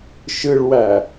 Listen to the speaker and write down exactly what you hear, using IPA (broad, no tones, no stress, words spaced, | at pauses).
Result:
ʃɯɭwæ